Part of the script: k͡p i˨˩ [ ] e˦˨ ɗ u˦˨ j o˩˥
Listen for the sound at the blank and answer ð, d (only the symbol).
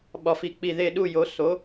ð